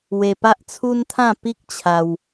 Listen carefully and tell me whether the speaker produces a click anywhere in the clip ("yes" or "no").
no